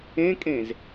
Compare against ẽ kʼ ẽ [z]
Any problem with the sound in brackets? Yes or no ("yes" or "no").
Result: no